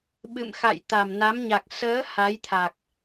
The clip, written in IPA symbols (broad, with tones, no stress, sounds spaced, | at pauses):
ɓ ɨ̰˧˨ m x a̰˧˨ j t̪ a˨˩ m n a˨˦ m ɲ a˨˩ k̚ s əː˨˦ h a˨˦ j t̪ʰ a˨˩ k̚